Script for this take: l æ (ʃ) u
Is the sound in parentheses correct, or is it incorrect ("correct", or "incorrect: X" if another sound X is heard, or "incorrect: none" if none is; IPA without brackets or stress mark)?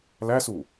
incorrect: s